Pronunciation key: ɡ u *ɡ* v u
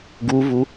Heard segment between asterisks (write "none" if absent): none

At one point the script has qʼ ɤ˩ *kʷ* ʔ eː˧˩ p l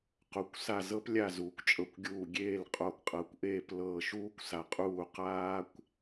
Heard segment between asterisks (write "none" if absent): kʷ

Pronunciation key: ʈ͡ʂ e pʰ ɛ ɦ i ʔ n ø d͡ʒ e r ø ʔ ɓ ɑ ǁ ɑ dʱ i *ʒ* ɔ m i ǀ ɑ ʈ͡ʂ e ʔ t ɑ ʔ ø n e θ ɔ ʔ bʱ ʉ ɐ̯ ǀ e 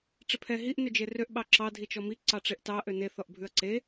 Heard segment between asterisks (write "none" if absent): t͡ʃ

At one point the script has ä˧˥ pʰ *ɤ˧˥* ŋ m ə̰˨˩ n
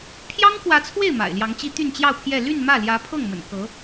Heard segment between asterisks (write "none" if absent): ɤ˥˩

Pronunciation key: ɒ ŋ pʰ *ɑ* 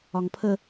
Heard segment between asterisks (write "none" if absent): ə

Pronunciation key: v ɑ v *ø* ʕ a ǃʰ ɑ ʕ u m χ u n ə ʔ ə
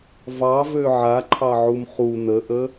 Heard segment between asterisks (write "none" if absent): ø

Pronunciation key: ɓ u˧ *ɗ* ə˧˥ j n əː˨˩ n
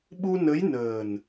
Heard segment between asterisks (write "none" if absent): n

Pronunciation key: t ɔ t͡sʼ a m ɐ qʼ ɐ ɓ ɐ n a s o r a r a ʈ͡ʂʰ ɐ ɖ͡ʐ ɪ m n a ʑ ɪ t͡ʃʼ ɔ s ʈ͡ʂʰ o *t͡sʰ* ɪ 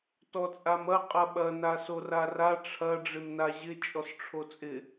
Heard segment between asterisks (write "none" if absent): t͡sʼ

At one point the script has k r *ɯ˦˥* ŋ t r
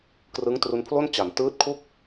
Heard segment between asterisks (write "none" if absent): ɯ˦˥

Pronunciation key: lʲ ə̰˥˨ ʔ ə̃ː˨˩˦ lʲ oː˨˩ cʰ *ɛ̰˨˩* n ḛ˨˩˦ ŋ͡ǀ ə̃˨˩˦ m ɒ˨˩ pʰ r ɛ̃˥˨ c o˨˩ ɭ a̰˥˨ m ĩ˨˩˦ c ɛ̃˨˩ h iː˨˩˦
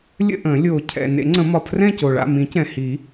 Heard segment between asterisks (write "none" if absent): ɛ̰˨˩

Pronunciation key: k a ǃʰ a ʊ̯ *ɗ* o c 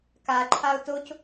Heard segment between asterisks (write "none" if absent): t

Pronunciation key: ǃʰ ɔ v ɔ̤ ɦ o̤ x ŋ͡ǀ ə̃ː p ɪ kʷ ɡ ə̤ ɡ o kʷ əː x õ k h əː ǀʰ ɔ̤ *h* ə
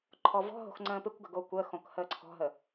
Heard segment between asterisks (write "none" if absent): ɦ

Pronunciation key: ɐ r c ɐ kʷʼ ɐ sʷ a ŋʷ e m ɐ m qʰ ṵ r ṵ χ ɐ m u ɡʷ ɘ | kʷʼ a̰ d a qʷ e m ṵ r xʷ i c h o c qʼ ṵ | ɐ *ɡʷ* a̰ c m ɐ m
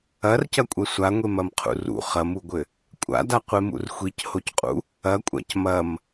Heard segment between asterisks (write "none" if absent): kʷʼ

